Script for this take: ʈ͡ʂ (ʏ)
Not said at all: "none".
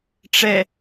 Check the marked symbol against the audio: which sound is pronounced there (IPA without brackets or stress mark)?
ɛ